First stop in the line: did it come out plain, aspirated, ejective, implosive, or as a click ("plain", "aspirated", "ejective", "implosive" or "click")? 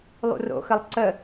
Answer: click